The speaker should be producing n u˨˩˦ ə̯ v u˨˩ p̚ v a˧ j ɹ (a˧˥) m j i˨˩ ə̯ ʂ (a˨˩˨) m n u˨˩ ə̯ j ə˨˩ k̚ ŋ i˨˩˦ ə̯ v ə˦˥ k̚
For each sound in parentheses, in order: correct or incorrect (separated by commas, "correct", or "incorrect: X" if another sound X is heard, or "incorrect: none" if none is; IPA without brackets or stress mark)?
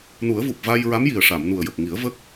correct, correct